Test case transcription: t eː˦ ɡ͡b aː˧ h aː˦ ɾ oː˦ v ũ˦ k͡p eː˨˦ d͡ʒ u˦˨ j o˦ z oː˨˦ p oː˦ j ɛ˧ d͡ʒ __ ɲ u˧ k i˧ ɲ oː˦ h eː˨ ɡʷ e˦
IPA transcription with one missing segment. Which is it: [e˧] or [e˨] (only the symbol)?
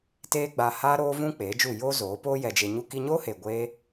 e˧